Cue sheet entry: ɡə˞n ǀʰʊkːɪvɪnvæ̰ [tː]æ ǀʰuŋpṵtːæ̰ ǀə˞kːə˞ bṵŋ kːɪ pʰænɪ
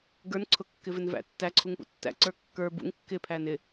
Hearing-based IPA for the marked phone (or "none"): tː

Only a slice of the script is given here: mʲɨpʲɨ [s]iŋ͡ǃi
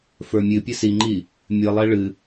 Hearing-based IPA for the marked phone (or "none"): s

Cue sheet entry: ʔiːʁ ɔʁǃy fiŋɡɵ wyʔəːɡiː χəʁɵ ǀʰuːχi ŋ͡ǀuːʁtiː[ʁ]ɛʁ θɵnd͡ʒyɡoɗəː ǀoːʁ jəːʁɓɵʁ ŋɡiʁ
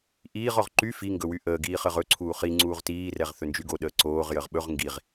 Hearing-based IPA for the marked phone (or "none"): r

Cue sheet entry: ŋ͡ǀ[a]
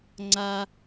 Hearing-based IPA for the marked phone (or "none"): a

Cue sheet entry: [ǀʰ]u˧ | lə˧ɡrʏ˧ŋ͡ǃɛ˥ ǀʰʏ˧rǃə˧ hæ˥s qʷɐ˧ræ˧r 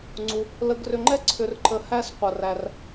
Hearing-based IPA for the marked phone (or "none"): ŋ͡ǀ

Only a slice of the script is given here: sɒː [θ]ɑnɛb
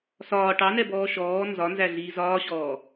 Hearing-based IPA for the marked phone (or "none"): ʈ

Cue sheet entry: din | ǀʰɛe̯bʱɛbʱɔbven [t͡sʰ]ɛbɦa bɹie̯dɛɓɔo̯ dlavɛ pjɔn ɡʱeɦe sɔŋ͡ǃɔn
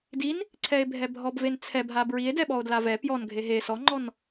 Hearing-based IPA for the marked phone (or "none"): t͡sʰ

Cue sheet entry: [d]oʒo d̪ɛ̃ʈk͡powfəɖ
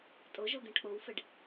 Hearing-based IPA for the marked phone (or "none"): tʼ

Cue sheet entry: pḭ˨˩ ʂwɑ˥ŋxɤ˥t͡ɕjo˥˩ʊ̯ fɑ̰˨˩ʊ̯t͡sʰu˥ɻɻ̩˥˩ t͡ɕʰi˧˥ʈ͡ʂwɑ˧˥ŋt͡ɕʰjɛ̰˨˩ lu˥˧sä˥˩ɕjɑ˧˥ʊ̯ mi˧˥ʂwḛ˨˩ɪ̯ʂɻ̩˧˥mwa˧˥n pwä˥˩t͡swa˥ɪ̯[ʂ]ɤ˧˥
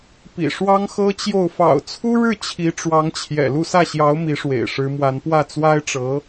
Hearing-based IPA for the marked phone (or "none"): ʈ͡ʂ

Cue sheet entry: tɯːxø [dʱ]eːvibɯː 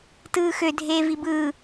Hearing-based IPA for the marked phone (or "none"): dʱ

